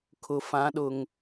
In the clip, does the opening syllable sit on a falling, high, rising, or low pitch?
low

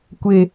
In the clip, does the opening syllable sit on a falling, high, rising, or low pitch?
high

